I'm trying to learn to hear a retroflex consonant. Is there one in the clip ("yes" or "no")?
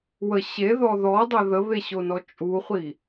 no